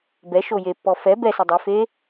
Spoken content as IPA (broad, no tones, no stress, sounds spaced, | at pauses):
b ɛ ʃ o j e pː ɔ f ɛ b ɛ s œ dˤ ʉ f e